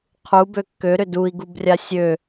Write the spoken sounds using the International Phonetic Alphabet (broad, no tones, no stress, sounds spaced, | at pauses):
qʰ u b ø kː ø ɾ ʏ d u i̯ ɡ u b rʲ a sʲ ø